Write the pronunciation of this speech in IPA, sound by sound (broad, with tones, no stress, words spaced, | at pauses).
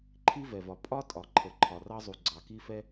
ǃʰi˥vɛ˩vɒ˩ pʼɒ˥tʼɒ˩ǃʰə˩ ǃʰɒ˩rɑ˥zˤu˩ ɡ͡ǀɑ˩ki˥fɛ˥